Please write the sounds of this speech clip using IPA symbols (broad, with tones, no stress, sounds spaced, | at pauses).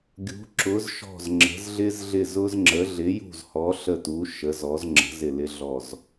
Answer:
ɡʲ ṳ˩˧ ǁ ʊ˩˧ z ʃ ɔ̤˧˩ z ŋ͡ǁ ə̤˩˧ z ɮ ɪ˧ z ɮ ɪ˧˩ z ʊ˧ z ŋ͡ǁ ə˩˧ ɮ ɪ˩˧ j ṳ˧˩ z h ɔ˩˧ ɬ ə˧˩ t u˩˧ ʃ ə˩˧ z ɔ˩˧ z ŋ͡ǁ ə̤˩˧ z ɪ˧˩ l ɪ˧ ɮ ɔ˧˩ z